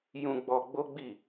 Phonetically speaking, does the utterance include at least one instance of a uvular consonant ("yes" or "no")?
no